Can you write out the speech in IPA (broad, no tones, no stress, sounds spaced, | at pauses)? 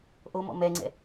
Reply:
ʔ o m ɔ̰ m ɛ ŋ͡ǀ ɛ̰